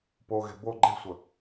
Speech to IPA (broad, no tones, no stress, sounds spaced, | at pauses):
p o ɣ e̤ b o ɡ͡ǃ e̤ sʷ ə